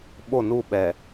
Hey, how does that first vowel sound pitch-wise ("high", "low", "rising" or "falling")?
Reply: falling